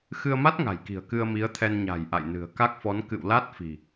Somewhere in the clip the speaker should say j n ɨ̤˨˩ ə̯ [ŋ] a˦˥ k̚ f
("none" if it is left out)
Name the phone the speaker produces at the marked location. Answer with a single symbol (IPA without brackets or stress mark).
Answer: k